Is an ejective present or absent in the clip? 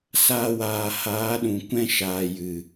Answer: absent